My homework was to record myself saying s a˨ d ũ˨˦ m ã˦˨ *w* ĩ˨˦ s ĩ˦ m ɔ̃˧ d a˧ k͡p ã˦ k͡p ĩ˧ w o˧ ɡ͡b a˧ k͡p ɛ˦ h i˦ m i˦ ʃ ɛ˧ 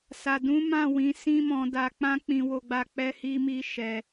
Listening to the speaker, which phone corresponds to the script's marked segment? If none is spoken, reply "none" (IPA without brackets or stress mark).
w